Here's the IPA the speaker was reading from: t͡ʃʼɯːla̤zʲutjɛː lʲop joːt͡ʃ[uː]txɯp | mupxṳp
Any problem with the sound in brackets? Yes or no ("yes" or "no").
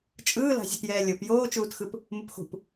no